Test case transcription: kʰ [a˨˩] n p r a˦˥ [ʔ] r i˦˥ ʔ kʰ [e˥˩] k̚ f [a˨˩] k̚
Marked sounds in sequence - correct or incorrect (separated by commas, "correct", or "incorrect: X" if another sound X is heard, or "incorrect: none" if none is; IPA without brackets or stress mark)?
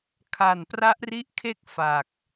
correct, correct, correct, correct